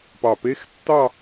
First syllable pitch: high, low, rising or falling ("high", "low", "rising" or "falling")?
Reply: low